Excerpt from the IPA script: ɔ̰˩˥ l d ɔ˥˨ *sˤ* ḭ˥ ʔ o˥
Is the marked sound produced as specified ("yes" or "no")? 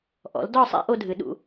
yes